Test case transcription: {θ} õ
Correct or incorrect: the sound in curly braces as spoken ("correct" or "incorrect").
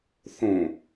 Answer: correct